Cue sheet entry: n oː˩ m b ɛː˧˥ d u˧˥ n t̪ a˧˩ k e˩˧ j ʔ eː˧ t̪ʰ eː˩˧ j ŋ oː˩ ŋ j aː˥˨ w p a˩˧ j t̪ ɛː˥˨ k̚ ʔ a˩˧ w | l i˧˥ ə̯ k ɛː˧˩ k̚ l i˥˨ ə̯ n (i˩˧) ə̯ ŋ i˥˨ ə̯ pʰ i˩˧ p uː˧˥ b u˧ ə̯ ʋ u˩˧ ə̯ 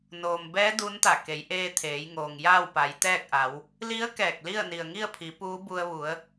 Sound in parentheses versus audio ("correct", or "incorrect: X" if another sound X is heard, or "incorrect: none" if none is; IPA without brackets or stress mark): incorrect: i˩